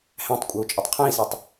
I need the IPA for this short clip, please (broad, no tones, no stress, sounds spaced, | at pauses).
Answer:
h æ̃ tˤ kʷʼ ə˞ u̯ t͡ʃʼ ʊ tˤ qʰ æ̃ i̯ s ɛ tˤ